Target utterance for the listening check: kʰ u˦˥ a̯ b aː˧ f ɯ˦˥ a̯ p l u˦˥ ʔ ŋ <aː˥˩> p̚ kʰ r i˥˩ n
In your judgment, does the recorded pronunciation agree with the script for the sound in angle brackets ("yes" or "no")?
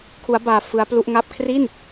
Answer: no